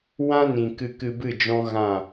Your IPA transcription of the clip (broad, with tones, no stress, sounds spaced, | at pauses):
w ã˦ n ĩ˨ k ɨ˧ k ɨ˧ b ɨ˦˨ d͡ʒ ɔ̃˦ ɣ ã˦˨